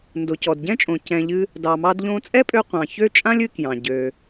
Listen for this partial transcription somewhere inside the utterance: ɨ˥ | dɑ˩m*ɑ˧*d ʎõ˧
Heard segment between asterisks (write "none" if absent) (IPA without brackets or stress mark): ɑ˧